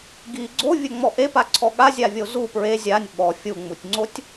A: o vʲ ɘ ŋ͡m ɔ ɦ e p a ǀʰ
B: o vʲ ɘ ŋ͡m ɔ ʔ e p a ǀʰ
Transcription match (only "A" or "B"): B